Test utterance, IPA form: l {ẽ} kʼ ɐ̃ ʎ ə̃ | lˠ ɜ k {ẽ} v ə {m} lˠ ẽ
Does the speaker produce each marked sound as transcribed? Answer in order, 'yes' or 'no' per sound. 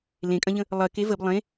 yes, no, no

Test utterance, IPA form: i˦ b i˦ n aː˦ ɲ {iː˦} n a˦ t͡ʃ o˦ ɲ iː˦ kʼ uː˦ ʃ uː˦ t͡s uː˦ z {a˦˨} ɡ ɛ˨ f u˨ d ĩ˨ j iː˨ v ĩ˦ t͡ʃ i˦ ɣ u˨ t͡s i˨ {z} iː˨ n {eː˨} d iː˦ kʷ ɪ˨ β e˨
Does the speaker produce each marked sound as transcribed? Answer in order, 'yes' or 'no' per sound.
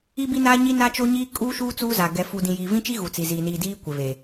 no, no, yes, no

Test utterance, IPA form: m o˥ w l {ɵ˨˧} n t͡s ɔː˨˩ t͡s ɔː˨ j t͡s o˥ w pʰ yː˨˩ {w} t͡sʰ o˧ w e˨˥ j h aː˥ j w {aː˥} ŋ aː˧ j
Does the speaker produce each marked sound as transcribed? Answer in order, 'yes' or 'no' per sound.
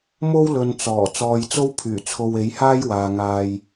no, no, no

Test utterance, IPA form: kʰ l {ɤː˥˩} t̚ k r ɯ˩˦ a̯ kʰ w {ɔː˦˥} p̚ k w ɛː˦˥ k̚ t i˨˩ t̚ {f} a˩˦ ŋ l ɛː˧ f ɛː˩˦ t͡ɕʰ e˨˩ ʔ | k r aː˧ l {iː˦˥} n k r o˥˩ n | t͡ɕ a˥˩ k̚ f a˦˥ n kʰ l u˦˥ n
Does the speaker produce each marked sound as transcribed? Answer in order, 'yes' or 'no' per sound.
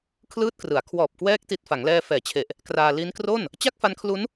no, no, yes, no

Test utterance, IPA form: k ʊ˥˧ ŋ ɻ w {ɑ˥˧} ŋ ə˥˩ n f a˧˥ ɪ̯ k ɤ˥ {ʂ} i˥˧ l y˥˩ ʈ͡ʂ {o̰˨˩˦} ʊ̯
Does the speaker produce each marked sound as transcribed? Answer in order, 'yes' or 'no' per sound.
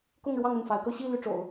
yes, no, yes

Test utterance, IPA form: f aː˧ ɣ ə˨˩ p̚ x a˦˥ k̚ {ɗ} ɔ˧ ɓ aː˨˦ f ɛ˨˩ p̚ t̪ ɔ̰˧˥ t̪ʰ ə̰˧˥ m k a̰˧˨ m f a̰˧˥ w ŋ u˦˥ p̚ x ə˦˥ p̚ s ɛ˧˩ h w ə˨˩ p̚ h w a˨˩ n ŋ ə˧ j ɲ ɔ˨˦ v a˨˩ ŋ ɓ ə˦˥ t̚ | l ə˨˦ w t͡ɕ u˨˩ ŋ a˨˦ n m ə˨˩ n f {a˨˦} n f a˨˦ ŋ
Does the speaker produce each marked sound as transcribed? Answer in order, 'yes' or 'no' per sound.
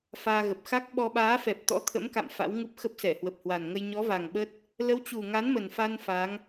no, no

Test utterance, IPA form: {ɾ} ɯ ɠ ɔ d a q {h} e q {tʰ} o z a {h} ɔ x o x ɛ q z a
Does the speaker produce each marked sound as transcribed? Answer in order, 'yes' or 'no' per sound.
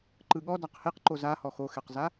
no, yes, no, yes

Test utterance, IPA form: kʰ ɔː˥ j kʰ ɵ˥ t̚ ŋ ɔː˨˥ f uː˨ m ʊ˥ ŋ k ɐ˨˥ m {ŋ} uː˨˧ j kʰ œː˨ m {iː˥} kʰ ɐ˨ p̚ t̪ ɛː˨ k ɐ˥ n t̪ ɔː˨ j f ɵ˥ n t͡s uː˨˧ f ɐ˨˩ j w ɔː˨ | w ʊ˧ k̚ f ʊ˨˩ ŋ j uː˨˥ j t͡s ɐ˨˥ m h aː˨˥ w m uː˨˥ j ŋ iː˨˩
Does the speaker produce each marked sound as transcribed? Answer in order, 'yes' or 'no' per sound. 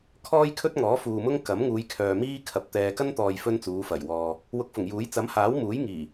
yes, yes

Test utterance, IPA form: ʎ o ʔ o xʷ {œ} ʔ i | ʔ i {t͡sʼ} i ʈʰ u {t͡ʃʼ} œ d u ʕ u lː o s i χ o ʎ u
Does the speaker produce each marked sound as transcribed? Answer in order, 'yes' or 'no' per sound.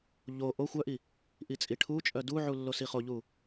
yes, yes, yes

